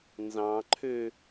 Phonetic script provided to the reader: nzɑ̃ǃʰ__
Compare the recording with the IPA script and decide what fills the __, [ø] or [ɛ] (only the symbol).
ø